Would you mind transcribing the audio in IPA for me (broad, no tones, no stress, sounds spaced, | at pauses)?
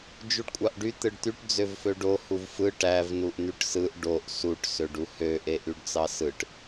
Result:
d͡ʒ u ɖ kʷʼ ɑ ʔ ɖ y t̪ ɯ ɖ t̪ y ʈ d͡z ø v f ø ɖ o h u v f ɯ ʈ æ v n u ʔ n̪ y ʈ s ɯ ʔ ɖ o ʔ s u ʈ s ø ɖ u h ø ʔ e ʔ y ɖ t͡s ɑ s ɯ ʈ